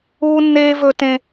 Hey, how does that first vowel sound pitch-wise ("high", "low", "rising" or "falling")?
high